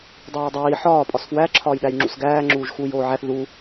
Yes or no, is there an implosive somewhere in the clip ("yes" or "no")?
yes